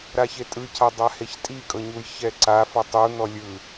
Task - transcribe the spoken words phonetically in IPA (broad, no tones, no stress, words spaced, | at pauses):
ɾaçetʼɯcʰa dˤaheçtʼikʼɤ ɲujçɛǀafɔ tˤun̪ɔ lʲɯ